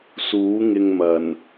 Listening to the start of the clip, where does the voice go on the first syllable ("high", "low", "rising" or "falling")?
rising